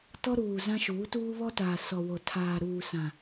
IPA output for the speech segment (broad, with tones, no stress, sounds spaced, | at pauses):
t ɔ˦ ɾ uː˨ z ã˦ ʃ uː˨˦ t uː˦ β ɔ˦ t aː˨ s ɔ˨ w o˨ tʰ aː˨ ɾ uː˨ s ã˨